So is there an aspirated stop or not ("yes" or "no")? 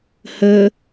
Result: no